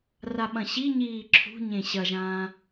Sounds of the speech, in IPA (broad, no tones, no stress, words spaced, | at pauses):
raɓɐ̃ɕiɲiː ǁʰṳ ɲẽɕɐʒãː